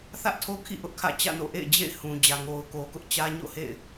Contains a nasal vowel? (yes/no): yes